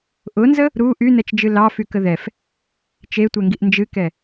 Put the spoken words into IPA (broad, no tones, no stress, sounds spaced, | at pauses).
ʔ ʊ n z ə | ɾ u ʔ y n ɛ t͡ʃ d͡ʒ ɨ l ɑ f y k ə ð ɛ f | t͡ʃ e tʷ ɛ ŋ ɡ i ʔ n d͡ʒ ɨ k ɛ